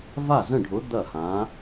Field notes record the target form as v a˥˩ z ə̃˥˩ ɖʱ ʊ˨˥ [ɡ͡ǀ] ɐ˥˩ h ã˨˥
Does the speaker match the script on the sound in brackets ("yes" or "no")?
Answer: no